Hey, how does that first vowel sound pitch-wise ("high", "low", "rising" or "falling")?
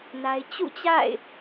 high